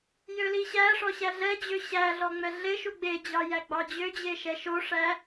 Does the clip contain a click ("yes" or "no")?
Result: no